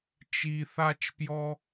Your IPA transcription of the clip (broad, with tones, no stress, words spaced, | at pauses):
t͡ʃi˨θa˧t͡ʃpjɔ˧